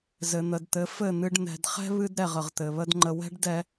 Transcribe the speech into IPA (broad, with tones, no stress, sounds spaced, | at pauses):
z ɘ˨ n̪ ə˨ d t̪ ɘ˨˦ f ɘ˦˨ n̪ ɨ˧ ɖ n̪ ɛ̤˨ d χ ɛ̤˦ β ɨ˦ d ɾ ɛ˨ ʁ ə˨ ʁ t̪ ɘ˨ β ə˦ d ŋ͡ǃ ə˧ w ɛ̤˦ ɖ d ɛ˧